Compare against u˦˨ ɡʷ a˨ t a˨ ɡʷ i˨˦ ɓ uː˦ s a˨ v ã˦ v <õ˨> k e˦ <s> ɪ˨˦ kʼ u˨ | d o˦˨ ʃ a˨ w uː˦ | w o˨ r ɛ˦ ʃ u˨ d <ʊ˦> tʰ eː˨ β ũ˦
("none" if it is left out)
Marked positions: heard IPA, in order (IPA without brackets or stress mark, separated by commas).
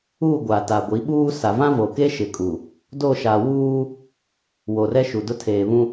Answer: o˨, ʃ, ʊ˦